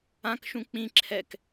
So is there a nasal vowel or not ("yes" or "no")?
yes